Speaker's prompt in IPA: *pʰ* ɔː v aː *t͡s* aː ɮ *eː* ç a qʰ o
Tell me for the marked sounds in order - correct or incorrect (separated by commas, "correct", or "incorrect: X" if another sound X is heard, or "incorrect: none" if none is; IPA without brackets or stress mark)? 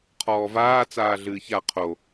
incorrect: qʰ, correct, incorrect: ɨː